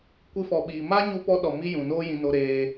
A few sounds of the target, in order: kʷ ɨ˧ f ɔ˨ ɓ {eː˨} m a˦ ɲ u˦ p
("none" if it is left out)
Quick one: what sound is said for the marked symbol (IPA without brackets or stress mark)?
iː˨